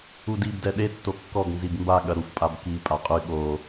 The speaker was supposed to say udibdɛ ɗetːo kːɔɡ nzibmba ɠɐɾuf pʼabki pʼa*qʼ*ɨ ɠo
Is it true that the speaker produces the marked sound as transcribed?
yes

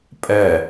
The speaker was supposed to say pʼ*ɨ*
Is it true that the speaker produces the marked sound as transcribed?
no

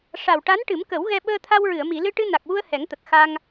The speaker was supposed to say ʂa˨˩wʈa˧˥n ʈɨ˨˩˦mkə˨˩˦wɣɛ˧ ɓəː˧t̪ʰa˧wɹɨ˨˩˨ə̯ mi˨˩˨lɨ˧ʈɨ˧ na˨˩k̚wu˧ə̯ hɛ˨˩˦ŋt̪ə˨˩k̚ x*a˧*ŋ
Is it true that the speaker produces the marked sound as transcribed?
yes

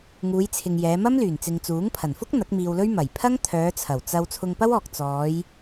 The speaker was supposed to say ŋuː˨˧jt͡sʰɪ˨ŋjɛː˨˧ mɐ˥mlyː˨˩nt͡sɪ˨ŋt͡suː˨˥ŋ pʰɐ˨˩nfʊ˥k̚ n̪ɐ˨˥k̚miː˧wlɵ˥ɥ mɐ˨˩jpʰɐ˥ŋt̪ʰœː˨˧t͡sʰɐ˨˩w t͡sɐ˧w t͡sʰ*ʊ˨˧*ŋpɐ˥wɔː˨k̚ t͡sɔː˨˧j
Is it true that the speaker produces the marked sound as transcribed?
no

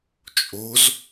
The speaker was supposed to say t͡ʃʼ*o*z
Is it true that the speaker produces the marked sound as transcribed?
yes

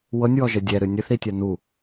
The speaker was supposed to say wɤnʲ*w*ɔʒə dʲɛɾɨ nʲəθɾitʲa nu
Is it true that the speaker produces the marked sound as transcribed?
yes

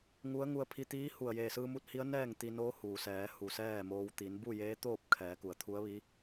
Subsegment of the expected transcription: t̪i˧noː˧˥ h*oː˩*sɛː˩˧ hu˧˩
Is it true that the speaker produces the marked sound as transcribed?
no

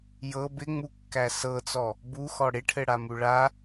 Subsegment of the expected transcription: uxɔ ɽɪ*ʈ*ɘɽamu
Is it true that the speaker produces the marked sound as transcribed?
no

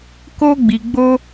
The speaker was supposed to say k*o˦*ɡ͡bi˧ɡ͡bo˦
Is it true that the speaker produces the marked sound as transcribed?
yes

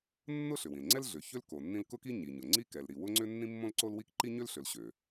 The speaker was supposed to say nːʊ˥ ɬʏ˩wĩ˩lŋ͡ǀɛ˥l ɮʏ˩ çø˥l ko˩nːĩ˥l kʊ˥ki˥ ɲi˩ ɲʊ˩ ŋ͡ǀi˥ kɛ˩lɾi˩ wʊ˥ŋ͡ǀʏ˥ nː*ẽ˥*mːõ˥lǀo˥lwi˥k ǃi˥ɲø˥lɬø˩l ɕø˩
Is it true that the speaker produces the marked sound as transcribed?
no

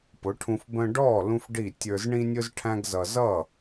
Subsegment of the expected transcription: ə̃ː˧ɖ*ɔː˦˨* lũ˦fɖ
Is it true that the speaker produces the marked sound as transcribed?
yes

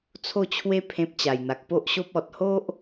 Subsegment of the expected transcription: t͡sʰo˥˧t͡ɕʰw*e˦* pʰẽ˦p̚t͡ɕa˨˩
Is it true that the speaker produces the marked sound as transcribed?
yes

